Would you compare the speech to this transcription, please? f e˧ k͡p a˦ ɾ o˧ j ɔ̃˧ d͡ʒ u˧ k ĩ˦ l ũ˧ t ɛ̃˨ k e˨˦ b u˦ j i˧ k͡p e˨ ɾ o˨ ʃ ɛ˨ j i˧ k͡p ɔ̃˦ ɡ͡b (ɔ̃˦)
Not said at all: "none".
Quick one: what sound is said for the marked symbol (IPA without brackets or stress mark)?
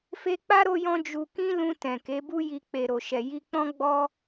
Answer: ɔ˦